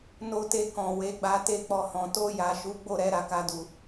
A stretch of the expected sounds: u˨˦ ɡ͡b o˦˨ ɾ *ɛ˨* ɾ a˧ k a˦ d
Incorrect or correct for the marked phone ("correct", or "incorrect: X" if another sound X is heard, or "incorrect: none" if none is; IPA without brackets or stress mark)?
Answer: incorrect: ɛ˨˦